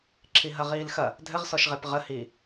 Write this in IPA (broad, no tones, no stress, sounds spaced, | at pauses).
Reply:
ǁʰ i ɦ ɐ ʁ iː l x ɐ | dʱ ɘ ʁ s ɔ ʃ ʁ e p ʁ ə h iː